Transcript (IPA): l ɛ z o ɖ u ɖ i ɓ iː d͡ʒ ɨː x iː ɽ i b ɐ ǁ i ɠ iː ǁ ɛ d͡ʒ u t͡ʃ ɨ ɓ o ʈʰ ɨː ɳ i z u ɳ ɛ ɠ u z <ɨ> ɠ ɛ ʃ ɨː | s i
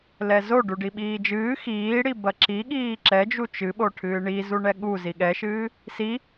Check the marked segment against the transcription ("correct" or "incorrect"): incorrect